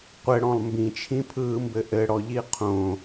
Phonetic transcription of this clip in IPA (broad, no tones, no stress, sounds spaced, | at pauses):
qʷ ɘ ɽ ɔ̃ lˠ m b ĩ t͡ʃʰ ĩ pʰ ɯː m b ɘ ʔ ɘ ɽ ɔ ʎ i qʰ õ